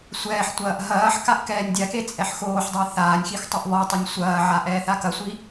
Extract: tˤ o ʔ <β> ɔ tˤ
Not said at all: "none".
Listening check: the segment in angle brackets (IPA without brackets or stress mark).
β